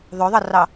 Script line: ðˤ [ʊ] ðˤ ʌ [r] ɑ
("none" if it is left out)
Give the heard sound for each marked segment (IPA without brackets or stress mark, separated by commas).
ʊ, r